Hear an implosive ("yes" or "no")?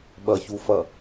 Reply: yes